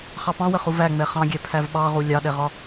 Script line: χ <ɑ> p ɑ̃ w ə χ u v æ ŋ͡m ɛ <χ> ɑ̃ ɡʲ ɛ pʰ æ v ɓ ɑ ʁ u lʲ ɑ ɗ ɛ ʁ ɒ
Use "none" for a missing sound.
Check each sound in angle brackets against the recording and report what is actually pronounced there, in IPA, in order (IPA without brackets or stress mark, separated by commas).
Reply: ɑ, χ